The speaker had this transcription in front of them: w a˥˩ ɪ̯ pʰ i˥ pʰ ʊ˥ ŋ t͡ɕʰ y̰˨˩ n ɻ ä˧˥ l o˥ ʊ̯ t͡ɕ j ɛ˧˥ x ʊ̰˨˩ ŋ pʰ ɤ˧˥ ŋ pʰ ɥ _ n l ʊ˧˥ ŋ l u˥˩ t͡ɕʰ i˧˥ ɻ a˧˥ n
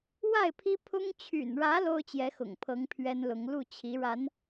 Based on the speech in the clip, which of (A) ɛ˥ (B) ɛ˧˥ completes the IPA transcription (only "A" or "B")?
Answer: A